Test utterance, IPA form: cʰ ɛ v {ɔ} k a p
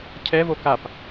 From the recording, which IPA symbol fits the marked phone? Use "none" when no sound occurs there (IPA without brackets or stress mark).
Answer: o